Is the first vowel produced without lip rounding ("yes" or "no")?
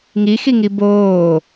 yes